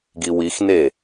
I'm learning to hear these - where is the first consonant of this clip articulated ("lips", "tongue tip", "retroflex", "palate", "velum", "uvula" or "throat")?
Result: velum